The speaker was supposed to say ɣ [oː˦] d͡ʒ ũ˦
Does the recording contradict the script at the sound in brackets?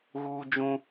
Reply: yes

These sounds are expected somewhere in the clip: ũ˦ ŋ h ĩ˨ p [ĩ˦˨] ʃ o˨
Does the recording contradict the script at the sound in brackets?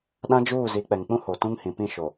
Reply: no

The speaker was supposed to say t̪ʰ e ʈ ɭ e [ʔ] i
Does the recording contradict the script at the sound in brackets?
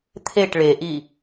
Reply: no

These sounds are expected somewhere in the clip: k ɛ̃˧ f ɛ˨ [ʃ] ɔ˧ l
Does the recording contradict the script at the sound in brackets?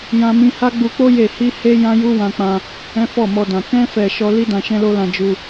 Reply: no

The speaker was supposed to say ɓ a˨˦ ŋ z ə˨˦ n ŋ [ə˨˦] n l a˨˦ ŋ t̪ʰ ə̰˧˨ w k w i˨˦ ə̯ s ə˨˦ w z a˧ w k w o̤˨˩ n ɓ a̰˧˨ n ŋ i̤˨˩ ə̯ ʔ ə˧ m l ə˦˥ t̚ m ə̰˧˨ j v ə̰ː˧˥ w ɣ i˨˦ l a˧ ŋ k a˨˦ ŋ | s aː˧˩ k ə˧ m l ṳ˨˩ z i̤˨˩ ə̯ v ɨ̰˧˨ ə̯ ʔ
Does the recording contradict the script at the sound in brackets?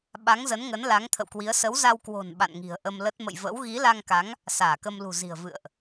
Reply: no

